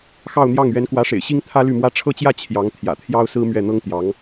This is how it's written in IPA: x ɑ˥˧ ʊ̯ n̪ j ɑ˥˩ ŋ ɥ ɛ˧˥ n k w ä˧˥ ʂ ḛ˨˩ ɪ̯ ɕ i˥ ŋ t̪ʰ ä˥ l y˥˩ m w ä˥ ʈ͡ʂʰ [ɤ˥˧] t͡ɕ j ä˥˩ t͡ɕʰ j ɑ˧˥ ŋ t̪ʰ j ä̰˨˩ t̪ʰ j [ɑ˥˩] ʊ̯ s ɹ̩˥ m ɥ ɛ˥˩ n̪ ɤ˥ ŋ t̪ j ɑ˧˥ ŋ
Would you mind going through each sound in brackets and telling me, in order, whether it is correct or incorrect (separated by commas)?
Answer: correct, incorrect